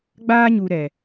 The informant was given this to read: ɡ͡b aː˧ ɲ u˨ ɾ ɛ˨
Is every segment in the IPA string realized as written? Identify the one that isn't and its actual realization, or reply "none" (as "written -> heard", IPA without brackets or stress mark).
none